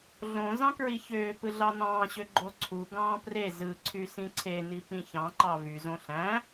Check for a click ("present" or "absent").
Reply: present